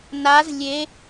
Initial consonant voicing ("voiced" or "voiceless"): voiced